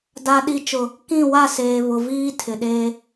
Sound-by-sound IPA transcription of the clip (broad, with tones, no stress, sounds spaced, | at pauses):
d a˨ ɗ i˨˦ t͡ʃ ʊ˨ | k ĩ˦˨ w a˦˨ s eː˨ β ʊ˨ v iː˦ tʰ ɪ˨ ɗ e˦